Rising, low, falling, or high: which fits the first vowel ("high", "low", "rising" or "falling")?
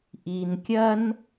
low